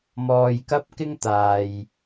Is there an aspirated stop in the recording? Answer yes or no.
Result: no